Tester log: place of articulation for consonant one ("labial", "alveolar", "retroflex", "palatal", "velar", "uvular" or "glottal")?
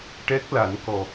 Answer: retroflex